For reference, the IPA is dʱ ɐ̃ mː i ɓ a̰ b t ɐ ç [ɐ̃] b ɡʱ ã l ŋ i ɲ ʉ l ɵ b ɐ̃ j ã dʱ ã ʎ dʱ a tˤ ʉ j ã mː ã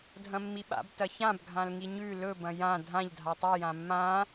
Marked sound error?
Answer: yes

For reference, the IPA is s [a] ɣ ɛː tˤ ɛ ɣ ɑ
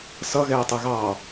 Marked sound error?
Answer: yes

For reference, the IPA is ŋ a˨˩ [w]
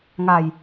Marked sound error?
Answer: yes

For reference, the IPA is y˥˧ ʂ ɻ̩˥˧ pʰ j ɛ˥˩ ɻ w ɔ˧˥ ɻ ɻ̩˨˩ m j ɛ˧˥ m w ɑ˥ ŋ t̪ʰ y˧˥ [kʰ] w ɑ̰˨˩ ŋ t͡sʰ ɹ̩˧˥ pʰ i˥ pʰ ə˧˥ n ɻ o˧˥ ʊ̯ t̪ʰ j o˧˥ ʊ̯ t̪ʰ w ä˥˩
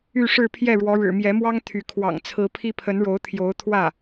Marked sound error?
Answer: no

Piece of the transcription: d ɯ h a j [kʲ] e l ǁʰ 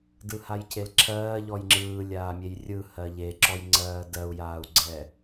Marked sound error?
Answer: yes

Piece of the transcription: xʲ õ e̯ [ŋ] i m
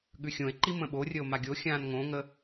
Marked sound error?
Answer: yes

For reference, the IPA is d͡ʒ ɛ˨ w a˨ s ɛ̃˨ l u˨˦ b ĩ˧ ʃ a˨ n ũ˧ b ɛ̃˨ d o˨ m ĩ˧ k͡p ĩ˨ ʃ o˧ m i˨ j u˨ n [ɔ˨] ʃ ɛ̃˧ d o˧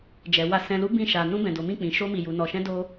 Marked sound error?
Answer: no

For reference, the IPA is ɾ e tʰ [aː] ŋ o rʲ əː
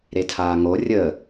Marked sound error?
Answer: no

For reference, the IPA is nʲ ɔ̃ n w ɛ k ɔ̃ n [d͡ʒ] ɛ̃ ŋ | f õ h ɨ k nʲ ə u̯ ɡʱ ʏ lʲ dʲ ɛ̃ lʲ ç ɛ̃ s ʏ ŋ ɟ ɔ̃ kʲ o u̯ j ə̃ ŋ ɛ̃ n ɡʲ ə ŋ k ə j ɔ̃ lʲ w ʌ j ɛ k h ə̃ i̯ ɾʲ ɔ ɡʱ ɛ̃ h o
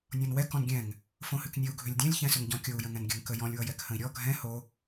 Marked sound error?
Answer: yes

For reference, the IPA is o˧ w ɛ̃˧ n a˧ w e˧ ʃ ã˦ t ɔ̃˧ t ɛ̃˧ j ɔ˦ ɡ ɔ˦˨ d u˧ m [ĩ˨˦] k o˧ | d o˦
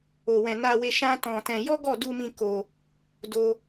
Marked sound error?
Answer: yes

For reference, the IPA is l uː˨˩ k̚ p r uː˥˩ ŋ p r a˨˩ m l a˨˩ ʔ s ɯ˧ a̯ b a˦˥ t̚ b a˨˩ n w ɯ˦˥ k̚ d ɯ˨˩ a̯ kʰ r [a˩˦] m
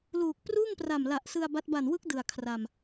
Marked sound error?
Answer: yes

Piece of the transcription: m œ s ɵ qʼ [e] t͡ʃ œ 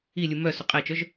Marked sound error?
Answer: no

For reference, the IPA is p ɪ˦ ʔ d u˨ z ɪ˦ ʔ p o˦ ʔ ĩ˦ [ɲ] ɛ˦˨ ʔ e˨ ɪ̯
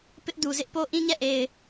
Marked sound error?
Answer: no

